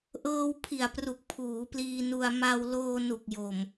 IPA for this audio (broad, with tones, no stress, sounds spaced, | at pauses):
ʔ ɤː˧ w pʰ i˨˩ a̯ p r u˨˩ k̚ pʰ uː˩˦ p l iː˧ n u˧ a̯ m a˧ w l oː˧ n u˨˩ k̚ j o˨˩ m